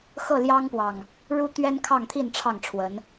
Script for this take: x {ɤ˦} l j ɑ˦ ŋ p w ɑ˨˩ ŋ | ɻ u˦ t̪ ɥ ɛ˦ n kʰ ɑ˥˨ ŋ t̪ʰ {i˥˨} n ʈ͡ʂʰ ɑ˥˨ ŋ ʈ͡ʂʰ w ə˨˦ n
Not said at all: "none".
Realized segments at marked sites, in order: ɤ˥˨, i˥˨

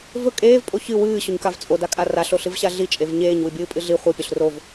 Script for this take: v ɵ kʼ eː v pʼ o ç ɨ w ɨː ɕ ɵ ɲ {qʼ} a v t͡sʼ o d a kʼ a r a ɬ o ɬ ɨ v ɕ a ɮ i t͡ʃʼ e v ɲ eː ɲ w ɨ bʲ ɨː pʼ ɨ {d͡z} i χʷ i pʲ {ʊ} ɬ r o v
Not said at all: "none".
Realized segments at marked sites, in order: k, ɮ, ɵ

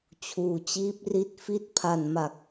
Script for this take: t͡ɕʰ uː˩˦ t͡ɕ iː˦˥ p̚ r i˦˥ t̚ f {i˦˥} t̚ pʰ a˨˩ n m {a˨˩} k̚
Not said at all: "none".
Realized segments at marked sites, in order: i˦˥, a˨˩

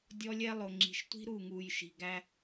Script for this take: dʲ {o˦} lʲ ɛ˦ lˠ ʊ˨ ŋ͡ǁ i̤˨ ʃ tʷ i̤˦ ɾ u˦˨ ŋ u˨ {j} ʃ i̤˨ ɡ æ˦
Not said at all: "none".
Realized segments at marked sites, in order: ɔ˦, j

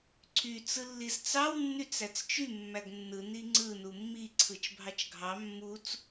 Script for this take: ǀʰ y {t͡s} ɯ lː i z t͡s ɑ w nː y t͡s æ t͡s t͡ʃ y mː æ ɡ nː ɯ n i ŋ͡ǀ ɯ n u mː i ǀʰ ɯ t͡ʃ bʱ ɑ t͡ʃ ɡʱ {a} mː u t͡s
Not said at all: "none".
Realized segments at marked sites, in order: t͡s, ɑ

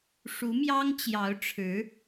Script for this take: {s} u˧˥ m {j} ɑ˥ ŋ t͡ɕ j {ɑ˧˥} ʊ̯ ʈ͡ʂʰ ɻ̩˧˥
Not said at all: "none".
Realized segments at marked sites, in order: ʂ, j, ɑ˧˥

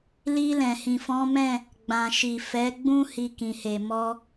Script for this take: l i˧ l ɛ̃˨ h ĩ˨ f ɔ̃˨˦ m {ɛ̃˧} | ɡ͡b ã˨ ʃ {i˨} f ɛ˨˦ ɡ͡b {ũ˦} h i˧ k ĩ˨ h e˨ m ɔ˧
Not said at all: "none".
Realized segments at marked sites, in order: ɛ̃˦˨, i˨, ũ˦

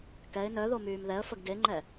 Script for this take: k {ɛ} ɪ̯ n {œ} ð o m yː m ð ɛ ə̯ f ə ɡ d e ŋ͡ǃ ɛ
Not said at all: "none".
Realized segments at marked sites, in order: ɛ, œ

